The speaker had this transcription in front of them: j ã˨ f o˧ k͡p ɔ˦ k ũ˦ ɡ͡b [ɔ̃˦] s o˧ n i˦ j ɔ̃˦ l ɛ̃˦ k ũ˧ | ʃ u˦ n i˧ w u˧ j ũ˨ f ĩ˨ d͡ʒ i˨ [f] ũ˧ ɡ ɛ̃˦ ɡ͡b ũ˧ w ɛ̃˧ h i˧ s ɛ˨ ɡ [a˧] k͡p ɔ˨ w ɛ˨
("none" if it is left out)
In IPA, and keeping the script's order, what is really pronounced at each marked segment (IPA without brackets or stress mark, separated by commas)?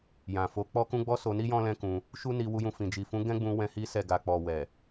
ɔ˦, f, a˨